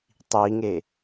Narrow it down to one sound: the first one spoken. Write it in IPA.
tˤ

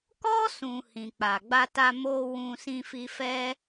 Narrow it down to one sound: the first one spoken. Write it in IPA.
k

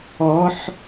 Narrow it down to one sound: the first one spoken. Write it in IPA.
ɔ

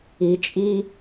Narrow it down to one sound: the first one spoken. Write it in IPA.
i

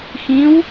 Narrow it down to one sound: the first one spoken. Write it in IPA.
x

